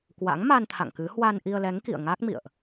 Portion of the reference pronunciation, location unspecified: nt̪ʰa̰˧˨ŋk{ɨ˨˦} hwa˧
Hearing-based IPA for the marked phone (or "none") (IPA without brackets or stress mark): ɨ˨˦